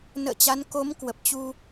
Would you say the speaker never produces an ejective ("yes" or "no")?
yes